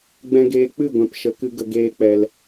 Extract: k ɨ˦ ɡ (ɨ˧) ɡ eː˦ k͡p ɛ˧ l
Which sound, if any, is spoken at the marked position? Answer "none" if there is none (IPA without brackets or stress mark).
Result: ə˧